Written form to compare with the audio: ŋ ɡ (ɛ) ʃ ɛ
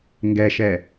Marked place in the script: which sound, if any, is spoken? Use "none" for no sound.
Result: ɛ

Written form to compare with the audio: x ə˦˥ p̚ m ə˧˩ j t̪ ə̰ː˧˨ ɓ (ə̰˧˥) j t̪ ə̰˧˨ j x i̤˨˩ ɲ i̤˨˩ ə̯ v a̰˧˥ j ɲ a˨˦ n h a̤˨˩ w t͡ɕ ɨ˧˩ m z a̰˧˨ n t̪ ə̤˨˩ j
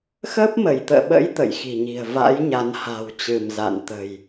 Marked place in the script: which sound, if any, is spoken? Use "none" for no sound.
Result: ə̰˧˥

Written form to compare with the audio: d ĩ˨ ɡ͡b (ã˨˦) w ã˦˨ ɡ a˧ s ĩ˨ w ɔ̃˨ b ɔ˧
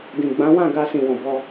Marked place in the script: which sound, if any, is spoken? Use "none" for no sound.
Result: ã˨˦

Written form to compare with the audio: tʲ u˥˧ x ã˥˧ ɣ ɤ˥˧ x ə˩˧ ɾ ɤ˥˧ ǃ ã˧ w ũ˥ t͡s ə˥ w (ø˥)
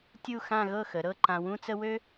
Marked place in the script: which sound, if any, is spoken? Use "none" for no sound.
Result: ø˥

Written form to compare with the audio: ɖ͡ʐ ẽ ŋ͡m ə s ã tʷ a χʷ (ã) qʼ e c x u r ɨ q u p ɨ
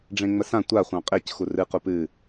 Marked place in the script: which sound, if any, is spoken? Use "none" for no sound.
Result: ɑ̃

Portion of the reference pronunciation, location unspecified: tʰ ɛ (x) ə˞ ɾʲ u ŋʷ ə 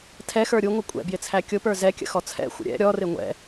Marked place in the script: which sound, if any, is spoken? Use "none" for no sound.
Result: x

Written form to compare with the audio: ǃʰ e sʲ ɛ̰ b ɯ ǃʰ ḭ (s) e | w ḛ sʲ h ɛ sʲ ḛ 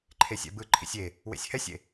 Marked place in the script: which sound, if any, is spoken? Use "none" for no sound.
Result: sʲ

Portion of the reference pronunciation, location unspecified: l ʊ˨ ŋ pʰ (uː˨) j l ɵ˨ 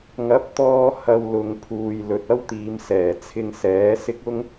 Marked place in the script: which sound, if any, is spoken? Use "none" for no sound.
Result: uː˨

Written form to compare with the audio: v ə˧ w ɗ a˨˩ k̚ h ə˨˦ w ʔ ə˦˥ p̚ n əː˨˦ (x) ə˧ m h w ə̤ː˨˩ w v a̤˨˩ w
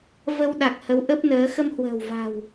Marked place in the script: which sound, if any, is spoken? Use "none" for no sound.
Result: x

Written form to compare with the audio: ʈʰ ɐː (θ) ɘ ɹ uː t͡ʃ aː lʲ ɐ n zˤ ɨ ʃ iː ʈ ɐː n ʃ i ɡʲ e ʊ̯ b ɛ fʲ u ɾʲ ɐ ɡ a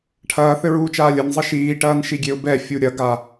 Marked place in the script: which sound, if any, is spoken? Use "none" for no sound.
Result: θ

